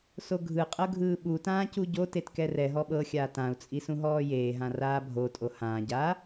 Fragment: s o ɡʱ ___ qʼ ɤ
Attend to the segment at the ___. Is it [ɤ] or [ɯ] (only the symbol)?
ɯ